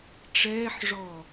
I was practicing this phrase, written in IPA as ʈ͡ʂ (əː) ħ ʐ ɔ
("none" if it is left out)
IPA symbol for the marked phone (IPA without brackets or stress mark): ɛː